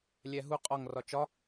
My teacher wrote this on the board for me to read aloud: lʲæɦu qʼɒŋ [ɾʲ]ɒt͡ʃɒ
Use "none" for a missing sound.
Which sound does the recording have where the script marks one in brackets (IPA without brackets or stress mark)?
r